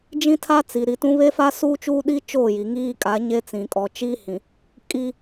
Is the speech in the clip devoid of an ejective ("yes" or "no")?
no